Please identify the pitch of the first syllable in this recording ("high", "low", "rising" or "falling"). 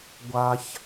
low